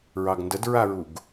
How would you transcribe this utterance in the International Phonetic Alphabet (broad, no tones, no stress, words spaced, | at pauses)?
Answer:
ɹɑɡndədɹaɹuɡ